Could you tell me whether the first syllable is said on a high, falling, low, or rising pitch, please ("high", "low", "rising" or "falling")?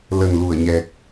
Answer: low